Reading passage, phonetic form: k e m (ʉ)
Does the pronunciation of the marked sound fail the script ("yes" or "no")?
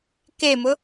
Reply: yes